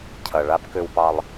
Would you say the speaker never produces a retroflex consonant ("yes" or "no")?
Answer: no